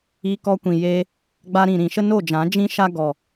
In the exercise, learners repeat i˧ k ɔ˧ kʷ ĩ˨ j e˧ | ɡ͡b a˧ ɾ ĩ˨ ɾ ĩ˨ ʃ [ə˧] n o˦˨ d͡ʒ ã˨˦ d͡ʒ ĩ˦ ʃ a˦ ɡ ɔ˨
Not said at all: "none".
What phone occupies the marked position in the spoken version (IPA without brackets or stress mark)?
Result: ə˦